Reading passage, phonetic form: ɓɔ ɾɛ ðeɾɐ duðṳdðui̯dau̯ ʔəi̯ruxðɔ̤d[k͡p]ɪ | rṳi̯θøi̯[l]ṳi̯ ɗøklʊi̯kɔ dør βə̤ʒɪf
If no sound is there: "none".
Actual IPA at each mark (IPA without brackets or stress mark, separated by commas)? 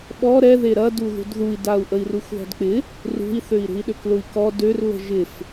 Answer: k͡p, ɾ